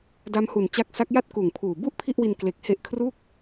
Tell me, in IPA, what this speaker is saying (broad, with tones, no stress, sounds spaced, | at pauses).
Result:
d a˦˥ m h u˨˩ n t͡ɕ a˦˥ k̚ s a˦˥ k̚ j a˥˩ t̚ k uː˨˩ ŋ pʰ uː˨˩ b u˥˩ ʔ pʰ i˥˩ ʔ w i˧ n k l e˨˩ k̚ h e˦˥ ʔ kʰ r uː˥˩ k̚